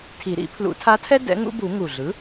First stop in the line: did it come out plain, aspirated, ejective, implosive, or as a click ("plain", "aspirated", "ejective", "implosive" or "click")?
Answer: aspirated